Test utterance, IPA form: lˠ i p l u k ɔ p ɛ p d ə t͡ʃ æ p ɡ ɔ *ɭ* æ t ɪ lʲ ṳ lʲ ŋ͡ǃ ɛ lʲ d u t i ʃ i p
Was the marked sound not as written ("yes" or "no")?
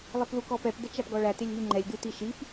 no